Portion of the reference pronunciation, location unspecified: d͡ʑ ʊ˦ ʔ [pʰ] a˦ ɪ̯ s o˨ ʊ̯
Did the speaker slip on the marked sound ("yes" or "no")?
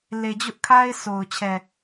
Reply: yes